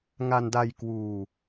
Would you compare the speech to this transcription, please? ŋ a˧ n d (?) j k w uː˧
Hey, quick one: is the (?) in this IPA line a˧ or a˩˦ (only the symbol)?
a˧